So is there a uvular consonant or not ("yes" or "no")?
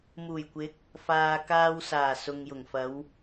no